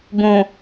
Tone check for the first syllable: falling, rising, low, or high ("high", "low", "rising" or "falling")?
low